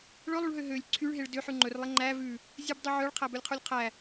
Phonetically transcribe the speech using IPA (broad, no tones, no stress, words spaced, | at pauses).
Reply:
ɭɵlˠuɭɦø ɦølʲ ǀʰyɭɦeɭ døħʉ ŋ͡ǃɵrlˠe ŋ͡ǃæ vʉ | zʲʉbdˤu ʕœɭqʰæbɵlʲqʰulʲ qʰæ